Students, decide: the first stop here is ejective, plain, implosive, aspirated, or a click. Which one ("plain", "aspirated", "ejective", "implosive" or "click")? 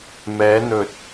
plain